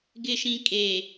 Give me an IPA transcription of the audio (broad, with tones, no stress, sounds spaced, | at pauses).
ɡ ɪ˦˨ ʃ ĩ˦ kʼ e˨